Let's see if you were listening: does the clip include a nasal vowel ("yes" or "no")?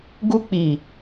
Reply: no